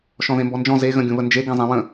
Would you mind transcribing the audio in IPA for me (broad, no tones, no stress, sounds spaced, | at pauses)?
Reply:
ʃ ɔ̃ ð ẽ m b ɔ n d͡ʒ ɔ̃ z e ɣ ə̃ ɡʲ ũ β ə n d͡ʒ e ɡ ẽ zˤ ẽ w ə̃